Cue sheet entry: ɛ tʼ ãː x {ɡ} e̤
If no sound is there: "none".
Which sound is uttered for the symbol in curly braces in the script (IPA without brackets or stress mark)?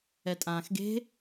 ɡ